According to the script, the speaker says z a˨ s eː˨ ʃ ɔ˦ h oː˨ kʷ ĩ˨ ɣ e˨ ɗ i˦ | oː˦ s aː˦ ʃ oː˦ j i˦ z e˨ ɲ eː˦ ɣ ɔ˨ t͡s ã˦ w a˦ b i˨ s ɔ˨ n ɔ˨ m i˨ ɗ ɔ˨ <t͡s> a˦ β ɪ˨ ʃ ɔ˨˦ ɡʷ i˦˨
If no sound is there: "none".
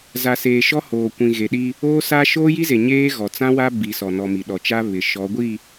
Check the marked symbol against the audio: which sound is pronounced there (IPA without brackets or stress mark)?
t͡ʃ